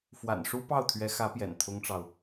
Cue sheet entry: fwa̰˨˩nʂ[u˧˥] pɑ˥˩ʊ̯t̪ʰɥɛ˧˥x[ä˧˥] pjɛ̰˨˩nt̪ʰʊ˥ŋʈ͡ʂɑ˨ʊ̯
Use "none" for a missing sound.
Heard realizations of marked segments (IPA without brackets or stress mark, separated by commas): u˥, ä˧˥